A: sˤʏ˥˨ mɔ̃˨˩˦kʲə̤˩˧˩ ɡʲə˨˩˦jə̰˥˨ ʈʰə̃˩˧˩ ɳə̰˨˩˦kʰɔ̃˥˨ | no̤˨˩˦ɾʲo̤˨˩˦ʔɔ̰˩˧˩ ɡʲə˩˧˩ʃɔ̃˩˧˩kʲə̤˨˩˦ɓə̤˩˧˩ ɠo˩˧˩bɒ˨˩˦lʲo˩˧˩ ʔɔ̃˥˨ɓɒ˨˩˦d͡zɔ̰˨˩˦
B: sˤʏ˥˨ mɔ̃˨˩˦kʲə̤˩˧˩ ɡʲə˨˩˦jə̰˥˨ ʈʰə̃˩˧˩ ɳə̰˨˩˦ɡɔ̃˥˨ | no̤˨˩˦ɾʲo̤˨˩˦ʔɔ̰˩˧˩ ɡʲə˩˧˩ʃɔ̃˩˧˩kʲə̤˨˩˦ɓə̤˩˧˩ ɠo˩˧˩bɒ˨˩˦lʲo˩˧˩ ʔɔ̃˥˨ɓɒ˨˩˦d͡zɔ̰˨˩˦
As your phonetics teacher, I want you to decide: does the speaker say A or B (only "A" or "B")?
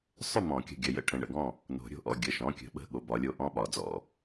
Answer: B